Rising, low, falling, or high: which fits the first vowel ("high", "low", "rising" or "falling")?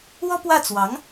high